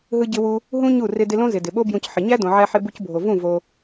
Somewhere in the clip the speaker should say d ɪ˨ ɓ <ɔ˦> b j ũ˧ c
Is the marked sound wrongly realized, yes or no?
yes